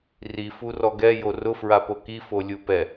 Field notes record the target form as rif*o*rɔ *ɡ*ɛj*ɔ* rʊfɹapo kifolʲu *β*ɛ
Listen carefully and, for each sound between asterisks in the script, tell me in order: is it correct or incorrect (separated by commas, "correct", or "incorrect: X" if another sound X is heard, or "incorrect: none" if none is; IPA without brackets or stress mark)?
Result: incorrect: u, correct, incorrect: o, incorrect: p